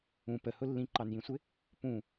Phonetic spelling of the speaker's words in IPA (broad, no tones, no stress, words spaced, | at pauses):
ũ pəhʊ lːĩǃɑnjĩsʷɪ | pũ